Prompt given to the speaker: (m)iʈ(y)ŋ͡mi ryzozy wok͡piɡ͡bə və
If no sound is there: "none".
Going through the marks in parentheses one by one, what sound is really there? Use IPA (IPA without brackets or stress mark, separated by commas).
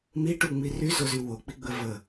m, u